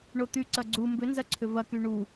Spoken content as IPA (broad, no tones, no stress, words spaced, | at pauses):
ɳot̪yǀɐ ɡ͡ǀu mbʏnzɐ ǀʰʏvɐky ɳu